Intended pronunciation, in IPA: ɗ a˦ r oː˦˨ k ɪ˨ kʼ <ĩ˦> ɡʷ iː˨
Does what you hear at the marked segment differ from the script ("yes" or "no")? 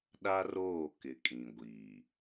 yes